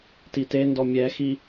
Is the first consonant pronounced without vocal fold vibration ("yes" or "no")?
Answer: yes